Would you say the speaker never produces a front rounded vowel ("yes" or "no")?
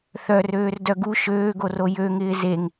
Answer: no